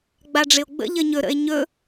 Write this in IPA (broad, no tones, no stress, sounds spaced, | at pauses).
ɡ͡b a ɖ͡ʐ ɪ o̯ ɡ͡b ə̰ ʎ ə ɲ ɵ ɾ ə̰ e̯ ɲ ɵ